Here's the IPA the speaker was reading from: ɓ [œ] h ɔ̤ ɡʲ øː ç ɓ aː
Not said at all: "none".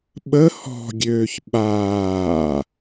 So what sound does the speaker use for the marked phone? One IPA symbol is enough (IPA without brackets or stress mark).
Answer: ə